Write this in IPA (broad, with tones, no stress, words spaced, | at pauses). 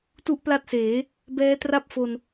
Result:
tu˥˩ʔpla˥˩t̚seː˩˦ | bɛː˦˥tra˥˩p̚fo˧n